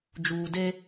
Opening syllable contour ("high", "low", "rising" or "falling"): low